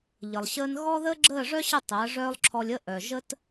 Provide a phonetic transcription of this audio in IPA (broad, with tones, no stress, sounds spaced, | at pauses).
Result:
ʎ ə˨ lˠ ɕ əː˦ n ɣ ɔ˦ ð əː˦ ɡ͡ǁ əː˦˨ ʐ œ˦ ɕ ə˦˨ tˤ əː˨˦ ʐ œː˦ lˠ ǁʰ ɔ˧ lʲ ə˦ ʔ œ˨ ʒ ə˦ t